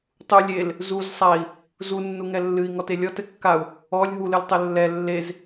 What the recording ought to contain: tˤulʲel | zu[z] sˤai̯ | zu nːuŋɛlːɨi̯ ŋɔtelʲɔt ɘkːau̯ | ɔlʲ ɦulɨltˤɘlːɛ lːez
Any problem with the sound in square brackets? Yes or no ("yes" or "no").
no